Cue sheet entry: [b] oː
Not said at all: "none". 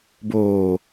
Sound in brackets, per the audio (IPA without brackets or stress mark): b